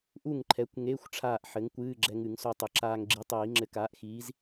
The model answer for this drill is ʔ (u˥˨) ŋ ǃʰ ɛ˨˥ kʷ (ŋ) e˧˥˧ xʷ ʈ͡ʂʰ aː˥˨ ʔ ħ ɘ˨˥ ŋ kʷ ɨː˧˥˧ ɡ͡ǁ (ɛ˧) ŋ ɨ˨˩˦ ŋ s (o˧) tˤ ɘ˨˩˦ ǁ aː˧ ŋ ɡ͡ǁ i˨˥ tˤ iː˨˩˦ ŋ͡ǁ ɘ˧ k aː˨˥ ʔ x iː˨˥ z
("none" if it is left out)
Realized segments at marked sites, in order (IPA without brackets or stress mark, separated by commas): u˥˨, ŋ, ɛ˧, o˧